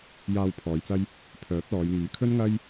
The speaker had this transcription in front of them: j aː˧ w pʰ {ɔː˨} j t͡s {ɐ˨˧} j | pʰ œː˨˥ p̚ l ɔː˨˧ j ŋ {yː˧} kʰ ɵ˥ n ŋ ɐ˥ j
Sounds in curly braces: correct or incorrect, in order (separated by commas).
incorrect, incorrect, incorrect